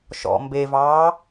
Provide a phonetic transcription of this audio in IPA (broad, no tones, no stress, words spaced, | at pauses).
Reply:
ʃɔ̰ mbevɑː